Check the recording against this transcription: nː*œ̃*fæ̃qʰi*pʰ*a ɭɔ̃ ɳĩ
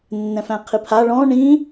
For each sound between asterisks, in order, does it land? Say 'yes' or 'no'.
no, yes

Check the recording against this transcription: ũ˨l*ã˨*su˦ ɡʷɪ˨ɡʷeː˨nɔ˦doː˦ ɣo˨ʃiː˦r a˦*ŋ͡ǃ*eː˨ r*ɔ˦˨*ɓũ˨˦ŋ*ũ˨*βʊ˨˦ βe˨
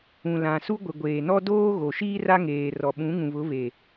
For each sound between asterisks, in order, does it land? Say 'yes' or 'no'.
yes, no, no, yes

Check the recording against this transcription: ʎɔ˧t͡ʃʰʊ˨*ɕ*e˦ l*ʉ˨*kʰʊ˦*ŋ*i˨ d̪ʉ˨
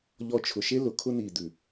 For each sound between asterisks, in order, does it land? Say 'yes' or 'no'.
no, no, no

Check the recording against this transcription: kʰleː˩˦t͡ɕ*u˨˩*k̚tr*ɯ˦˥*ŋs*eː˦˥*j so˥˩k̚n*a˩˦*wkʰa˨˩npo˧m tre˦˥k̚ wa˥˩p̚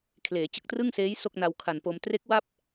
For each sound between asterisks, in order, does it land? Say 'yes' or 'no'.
no, no, yes, no

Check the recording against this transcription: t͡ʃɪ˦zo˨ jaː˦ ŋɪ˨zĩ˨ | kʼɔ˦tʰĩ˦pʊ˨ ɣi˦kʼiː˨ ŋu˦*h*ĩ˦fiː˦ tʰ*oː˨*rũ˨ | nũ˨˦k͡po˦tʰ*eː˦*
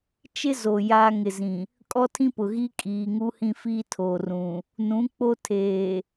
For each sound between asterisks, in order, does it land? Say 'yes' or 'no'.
yes, yes, no

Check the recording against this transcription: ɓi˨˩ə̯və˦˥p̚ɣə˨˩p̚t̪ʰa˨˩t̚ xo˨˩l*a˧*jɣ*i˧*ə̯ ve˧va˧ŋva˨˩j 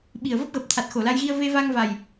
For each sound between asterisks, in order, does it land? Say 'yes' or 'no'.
yes, yes

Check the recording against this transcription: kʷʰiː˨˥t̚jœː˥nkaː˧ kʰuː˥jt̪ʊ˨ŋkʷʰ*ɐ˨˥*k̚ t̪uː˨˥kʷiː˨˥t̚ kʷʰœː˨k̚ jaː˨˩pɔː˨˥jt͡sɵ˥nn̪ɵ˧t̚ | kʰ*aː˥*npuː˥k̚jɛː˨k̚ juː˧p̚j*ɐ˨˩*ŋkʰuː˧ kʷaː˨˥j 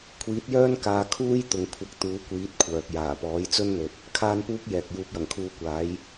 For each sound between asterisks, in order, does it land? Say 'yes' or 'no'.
yes, yes, yes

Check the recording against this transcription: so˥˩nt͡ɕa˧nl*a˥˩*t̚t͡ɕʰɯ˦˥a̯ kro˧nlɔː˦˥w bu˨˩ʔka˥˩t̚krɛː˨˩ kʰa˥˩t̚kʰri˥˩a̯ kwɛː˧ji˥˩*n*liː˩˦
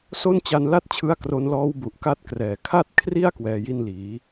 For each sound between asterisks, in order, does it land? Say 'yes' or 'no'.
yes, yes

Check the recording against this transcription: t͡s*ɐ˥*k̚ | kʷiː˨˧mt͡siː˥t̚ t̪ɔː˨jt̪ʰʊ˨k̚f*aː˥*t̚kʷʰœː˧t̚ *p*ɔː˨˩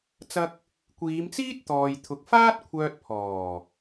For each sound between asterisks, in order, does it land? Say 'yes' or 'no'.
yes, yes, no

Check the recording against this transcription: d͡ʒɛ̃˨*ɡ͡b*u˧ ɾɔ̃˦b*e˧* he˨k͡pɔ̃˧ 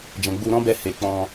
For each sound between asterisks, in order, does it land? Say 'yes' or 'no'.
yes, no

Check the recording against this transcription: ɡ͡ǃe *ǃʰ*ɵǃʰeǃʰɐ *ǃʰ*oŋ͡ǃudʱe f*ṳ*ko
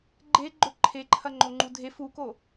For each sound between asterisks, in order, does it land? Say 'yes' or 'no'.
no, no, no

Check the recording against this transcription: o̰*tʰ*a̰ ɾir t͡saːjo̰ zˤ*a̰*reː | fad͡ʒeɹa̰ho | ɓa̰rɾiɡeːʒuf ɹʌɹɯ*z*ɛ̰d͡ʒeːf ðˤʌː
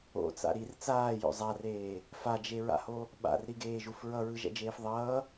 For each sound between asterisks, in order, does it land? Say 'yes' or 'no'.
no, no, no

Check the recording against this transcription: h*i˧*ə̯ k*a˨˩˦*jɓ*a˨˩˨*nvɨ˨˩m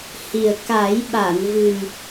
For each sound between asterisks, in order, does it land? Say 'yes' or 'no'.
no, yes, yes

